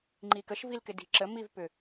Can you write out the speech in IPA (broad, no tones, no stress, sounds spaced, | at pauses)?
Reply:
ŋ͡ǃ i k ə ʃ v i l k ɪ d i̤ ǁ ə m i v p ʏ